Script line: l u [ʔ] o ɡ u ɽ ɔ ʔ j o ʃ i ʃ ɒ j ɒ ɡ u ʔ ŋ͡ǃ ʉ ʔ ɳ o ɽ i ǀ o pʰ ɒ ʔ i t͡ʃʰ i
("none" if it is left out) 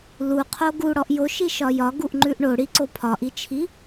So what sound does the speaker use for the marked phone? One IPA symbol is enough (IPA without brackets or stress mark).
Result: qʰ